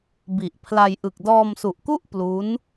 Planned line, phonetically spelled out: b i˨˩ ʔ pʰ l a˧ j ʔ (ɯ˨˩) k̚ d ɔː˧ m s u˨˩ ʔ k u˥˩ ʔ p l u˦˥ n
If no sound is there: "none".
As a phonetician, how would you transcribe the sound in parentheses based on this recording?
ɯ˨˩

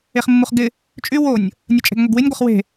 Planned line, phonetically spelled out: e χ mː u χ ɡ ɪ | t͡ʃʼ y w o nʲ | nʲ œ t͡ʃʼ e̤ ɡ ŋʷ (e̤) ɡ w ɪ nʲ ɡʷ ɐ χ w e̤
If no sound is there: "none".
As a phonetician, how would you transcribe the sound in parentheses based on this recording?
e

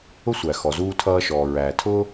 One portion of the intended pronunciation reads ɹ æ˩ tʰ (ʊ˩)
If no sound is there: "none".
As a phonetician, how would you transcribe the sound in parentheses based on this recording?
ʊ˧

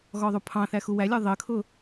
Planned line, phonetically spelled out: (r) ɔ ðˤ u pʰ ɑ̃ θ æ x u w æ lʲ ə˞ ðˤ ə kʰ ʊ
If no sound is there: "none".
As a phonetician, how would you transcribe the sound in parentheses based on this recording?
ɣ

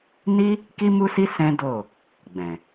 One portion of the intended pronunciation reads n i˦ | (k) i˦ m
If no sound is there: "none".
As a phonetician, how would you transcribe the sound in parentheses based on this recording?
k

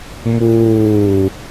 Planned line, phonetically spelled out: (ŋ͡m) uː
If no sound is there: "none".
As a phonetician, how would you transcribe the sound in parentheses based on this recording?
m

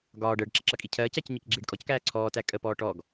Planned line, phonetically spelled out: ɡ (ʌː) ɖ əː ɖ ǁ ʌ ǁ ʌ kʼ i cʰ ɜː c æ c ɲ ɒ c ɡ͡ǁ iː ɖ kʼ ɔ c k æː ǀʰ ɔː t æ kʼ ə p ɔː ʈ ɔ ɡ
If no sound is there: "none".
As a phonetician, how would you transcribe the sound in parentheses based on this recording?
ɒː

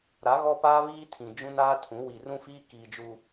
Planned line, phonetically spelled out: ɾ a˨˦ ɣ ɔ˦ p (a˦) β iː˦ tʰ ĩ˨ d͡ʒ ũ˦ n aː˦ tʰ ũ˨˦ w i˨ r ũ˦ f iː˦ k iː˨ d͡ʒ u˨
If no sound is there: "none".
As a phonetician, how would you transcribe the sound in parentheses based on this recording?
aː˦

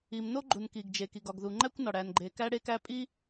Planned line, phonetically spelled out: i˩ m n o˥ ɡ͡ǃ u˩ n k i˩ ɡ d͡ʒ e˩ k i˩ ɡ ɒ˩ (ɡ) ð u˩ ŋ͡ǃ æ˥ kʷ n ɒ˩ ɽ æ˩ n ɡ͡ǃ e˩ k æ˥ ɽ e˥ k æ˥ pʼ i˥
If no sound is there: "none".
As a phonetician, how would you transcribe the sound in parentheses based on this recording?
ɡ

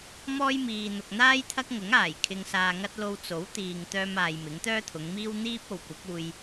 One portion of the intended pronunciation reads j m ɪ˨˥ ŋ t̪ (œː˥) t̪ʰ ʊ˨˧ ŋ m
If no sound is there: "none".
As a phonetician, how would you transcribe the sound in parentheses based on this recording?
œː˥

